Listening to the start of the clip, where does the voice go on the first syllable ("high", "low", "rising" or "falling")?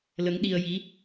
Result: rising